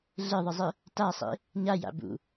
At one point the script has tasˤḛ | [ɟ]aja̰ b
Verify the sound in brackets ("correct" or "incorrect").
incorrect